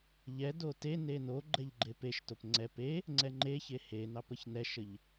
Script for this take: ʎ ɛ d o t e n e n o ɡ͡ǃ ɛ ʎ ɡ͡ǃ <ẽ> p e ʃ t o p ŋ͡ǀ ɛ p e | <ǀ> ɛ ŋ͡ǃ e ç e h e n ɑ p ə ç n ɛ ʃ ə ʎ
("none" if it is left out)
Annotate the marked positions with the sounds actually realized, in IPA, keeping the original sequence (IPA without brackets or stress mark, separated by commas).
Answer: e, ŋ͡ǀ